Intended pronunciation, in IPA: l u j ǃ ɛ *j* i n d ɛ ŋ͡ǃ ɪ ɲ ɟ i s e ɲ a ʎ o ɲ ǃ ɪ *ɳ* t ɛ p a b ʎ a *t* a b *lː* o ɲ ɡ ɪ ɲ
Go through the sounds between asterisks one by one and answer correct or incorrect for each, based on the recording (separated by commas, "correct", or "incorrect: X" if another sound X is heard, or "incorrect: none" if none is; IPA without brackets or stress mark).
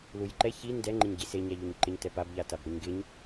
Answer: incorrect: ç, incorrect: ɲ, correct, incorrect: ɾ